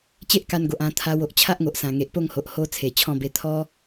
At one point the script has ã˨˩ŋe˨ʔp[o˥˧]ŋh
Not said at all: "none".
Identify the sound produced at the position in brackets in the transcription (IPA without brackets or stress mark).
o˥˧